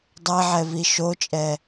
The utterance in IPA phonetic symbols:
dˤɛʕɛvi ʃot͡ʃʼɛ

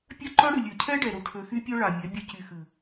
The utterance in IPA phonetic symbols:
pʲœ˦ǃœ˦ɽɨ˨ lʲø˨cʰɛ˦ɖɛ˨ ɾu˨ʈʰø˨xy˦pʲœ˦ ɭa˨mʲɛ˨˦ bʲø˦cy˨ xɨ˨

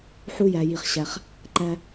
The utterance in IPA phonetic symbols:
ħu˦jæ˨ji˨χɕæ˨χ | ǃæ˦

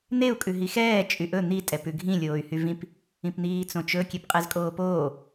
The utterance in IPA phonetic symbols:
n̪eu̯ kʼʉɦixɛː t͡ʃʼyʔɵ n̪i tʼɛpʉɡʱĩ lʲoːy̯hyvĩp | ĩpn̪iːt͡sõt͡ʃɵ kʲepqʼɛzkʼoːpoː

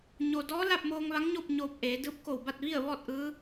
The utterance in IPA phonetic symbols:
ɲo˩ dɔː˧˥ la˥˨p̚moː˧ŋʋa˧˥ŋɲo˥˨p̚ ɲoː˧p̚ʔeː˩˧ dɯː˧˥p̚ko˧˩wba˥˨t̚ ʋi˥˨ə̯ʋɔː˥˨t̚ʔɯː˧˥

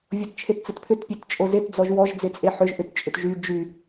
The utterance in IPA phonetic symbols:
vʲott͡ʃʰett͡sətpʰʏt pʲett͡ʃʼozet d͡zɔʒwɔʒ d͡zet͡sʼeħʏʒ ʔʏt t͡ʃʼʏtʒy d͡ʒy

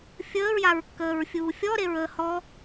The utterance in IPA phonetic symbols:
fʲəːɹjaɹkːəːɹfʲuː fʲɔɾeɹ əːhɔ

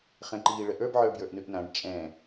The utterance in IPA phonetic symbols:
χɛ̃ǃiːɭəʔə˞b ʕə˞bjə˞ʔnʉʔnãɖ t͡ʃʼɛ̃

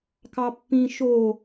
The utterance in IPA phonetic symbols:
kɑpːĩ ʃo

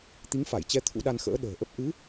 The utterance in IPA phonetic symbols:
t̪i˨˦ŋfa˧˩jt͡ɕɛ˧ t̪ʰṵ˧˥ɗa˧nxə̰ː˧˥ ɗə̤ː˨˩ʔə˦˥p̚ ʔɨ˨˦

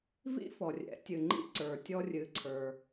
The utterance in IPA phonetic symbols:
vḭ˥fɔ˩rʲɛ̰˩˧ tʲɨ˩ŋ͡ǃḭ˥ ǀə˞˩tʲɔ˧ rʲɨ˩˧ǀʰə˞˩

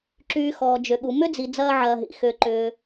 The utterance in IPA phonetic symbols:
ǁyː˨ xɔː˩d͡ʒʏ˩ɠu˩ mʏ˥d͡zi˩ d͡zɐː˦ʕɐː˨ɦḭ˩ xʏː˨ǃʏː˨

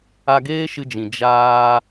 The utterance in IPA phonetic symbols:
a˧ɡeː˦ʃɨ˧d͡ʒĩ˨ d͡ʒaː˧

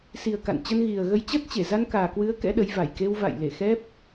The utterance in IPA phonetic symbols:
si˨˩ə̯ ka̰˧˨nt͡ɕə˧n ɣi˨˩ə̯ɣə˧j t͡ɕə˦˥t̚t͡ɕe˧˩ za˧nkaː˨˩kwɨ˨˦ə̯ kɛ̰˧˥ɗə˨˦j va˧˩jke˧w va̰˧˨j le˧˩xɛ˦˥p̚

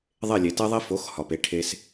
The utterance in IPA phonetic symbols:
ðˤe˥˩lʲe˩te˥ðˤi˥ fo˩˥x hɒ˩pe˧ ʈʰe˧s

